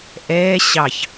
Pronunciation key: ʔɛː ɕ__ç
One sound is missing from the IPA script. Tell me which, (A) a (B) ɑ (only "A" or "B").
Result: B